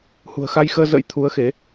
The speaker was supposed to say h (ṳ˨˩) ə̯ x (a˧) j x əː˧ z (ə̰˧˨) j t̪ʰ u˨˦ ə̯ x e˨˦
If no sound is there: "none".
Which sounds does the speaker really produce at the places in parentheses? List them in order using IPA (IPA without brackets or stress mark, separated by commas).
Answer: ṳ˨˩, a˧, ə̰˧˥